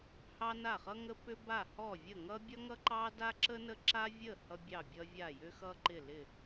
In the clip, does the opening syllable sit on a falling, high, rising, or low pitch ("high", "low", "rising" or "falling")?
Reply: high